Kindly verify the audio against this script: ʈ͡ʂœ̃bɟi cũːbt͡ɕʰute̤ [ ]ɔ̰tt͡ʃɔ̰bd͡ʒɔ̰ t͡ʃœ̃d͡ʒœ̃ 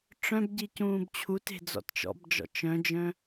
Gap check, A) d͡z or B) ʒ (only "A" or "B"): A